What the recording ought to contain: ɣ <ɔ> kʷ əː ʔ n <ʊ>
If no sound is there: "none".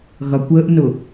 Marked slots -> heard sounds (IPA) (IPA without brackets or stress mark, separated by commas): ʌ, ʊ